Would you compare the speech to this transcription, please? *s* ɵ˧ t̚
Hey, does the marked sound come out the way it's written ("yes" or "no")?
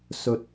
yes